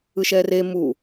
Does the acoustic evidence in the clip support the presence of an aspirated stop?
no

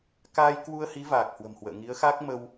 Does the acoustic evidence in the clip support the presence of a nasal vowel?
no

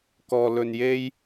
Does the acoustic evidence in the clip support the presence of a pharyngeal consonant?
no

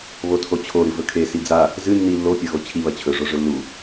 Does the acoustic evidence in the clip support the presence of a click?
no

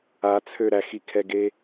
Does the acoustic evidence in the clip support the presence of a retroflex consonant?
no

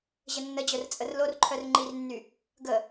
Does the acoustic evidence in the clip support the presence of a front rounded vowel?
yes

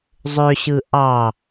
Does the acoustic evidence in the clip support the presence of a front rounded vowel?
yes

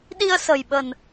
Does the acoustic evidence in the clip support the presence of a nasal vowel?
no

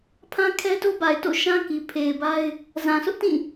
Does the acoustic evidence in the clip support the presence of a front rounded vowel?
no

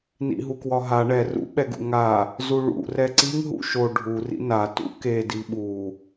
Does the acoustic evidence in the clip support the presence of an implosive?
yes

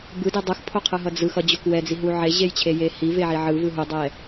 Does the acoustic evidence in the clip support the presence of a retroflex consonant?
no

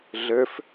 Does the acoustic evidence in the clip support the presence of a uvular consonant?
no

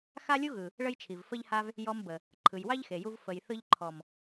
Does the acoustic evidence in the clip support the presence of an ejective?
no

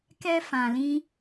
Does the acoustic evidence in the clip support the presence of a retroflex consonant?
no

